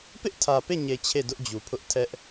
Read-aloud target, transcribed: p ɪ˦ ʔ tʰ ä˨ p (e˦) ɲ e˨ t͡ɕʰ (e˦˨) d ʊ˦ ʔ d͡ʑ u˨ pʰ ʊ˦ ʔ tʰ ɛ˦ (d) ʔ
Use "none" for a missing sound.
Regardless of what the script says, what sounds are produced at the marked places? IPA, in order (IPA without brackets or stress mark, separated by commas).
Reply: e˦˨, e˦˨, none